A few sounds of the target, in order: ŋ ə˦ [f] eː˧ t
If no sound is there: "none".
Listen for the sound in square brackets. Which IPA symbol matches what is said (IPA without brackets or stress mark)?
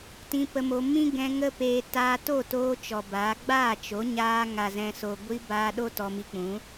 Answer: p